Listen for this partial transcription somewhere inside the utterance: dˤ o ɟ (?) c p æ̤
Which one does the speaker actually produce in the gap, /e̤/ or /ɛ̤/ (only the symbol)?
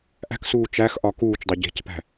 e̤